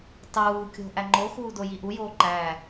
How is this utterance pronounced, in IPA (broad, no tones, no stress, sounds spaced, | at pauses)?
tˤ uː kʲ o̤ ʔ æ ŋ͡ǃ o x uː d o j i ʔ u j oː ǃ æː